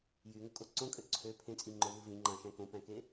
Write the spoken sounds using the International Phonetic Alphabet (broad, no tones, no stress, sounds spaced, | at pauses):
j y ŋ o kʼ o ǀ õ kʼ ø ǀʰ ø pʰ ẽ t͡sʼ i ŋ͡ǃ o v ɯ v ĩ ŋ͡ǃ ɑ̃ ʃ æ̃ k õ p æ̃ k e